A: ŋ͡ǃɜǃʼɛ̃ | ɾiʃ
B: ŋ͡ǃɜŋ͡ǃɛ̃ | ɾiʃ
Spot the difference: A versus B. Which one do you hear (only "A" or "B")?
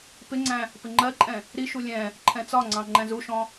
A